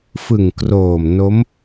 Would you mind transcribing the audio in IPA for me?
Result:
f ɯ˨˩ ŋ k r oː˨˩ m n o˦˥ m

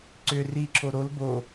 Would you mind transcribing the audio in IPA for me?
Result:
ǀ ʏ r i ǁʰ o ɾ o l b o

